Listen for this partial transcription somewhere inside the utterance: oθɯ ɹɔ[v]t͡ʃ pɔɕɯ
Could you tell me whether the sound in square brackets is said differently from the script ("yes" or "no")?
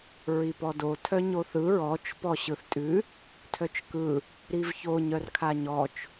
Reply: yes